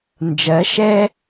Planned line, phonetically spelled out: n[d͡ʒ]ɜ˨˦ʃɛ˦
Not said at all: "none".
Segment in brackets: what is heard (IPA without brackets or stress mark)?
d͡ʒ